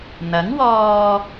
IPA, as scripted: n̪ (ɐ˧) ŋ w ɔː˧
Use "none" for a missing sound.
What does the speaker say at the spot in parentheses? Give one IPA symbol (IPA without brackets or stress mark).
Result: ɐ˨˥